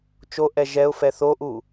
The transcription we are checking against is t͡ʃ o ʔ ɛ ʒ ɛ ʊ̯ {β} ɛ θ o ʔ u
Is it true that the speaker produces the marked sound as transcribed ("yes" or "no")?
no